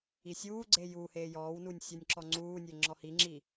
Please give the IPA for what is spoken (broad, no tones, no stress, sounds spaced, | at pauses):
i sʲ uː ɡ͡ǀ e j u h eː j ɔː w n uː nʲ sʲ ɔ nʲ ǁ ɔ ŋ͡ǀ uː nʲ e ŋ͡ǁ ɔ h i ŋ͡ǁ i